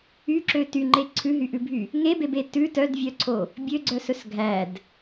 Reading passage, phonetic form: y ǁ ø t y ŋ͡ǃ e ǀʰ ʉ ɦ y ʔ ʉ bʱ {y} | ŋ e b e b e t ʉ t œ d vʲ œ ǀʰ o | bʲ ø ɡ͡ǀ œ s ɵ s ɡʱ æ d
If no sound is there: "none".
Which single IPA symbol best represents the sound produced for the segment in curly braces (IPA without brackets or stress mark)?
y